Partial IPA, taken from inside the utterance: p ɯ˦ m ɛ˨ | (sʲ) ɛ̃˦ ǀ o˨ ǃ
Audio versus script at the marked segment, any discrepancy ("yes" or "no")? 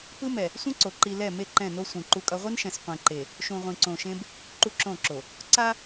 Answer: yes